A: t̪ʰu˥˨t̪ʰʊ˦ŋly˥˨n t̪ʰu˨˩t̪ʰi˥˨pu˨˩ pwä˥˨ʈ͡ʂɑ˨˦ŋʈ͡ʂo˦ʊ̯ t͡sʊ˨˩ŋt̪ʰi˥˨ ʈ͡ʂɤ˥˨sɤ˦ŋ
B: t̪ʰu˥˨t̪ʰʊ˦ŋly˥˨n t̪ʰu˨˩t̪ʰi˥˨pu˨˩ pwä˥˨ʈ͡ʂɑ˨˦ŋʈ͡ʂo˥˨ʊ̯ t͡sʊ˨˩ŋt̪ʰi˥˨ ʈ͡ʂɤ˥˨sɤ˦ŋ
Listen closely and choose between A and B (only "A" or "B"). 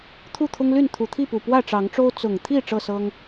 A